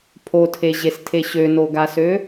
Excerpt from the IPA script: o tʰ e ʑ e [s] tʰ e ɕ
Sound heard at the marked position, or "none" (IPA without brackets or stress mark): s